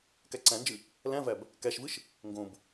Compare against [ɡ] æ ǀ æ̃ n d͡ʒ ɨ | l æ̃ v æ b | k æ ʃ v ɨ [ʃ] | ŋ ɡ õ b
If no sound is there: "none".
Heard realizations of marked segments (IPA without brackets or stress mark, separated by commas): k, ʃ